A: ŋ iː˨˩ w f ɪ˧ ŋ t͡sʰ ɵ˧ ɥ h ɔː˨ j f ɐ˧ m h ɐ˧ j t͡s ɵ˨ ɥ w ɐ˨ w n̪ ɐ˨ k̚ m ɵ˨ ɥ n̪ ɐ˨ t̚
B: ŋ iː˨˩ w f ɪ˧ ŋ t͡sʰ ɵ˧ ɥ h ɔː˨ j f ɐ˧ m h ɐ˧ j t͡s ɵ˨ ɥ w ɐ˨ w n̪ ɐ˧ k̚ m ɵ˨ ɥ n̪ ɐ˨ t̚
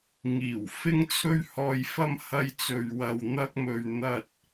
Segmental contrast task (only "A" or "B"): B